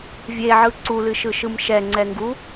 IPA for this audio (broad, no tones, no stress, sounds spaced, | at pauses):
vʲ e ʕ ɯ ǀ u l ɨ ʃ ɯ ʃ ɯ m ʃ ɛ ŋ͡ǀ ɛ ŋ ɡ u